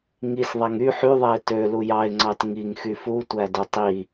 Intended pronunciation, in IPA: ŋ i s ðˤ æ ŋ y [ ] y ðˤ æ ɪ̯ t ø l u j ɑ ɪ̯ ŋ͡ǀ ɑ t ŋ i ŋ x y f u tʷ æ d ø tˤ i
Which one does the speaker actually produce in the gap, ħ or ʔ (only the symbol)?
ħ